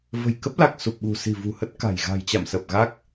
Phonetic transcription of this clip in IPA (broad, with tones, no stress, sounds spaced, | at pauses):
v ə̤˨˩ j k ə˦˥ p̚ l a˨˩ k̚ s u˨˩ p̚ ɓ ṳ˨˩ s i̤˨˩ v ṳ˨˩ h ə˦˥ t̚ k a̤˨˩ j ɣ a̤˨˩ j t͡ɕ a̰˧˨ m s ə˨˩ p̚ ɣ a˦˥ k̚